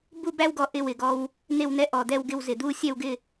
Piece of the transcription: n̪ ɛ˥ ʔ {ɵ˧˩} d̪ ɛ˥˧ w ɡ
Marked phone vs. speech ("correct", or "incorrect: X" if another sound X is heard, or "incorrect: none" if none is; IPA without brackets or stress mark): incorrect: ɔ˧˩